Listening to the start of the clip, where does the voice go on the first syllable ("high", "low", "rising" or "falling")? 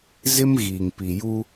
high